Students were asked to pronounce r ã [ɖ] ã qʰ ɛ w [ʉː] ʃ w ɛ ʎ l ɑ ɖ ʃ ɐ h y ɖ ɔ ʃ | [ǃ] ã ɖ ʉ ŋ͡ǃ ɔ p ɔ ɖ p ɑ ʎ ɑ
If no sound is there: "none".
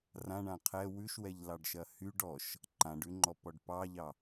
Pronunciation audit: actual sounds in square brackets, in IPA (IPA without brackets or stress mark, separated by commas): ɳ, ʉ, ǃ